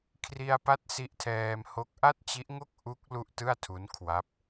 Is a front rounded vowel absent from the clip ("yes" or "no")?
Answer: yes